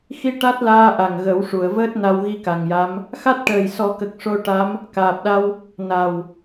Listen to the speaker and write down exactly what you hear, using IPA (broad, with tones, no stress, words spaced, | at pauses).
xi˧ ʈa˦˥t̚laː˧ʔa˨˩ŋ ɣə˨˩˦w ʂu˨˩˨ə̯vəː˦˥t̚ na˧wɣi˧ka˨˩ŋja˧˥m | xa˦˥t̚ʈəː˨˩jsɔ˨˩˦kə˨˩k̚ ʂo˧ʈa˧˥m | kaː˨˩p̚ɗa˧w | na˨˩w